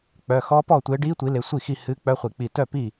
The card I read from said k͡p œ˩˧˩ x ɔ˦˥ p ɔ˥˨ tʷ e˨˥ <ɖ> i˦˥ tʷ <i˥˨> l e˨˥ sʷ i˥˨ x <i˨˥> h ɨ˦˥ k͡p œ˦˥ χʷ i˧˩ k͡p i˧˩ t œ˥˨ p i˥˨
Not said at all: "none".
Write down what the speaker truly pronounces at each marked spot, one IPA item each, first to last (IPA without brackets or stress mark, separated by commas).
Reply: ɖ, i˨˥, i˥˨